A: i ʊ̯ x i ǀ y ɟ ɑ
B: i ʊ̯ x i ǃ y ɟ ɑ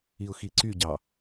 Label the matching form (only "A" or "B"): A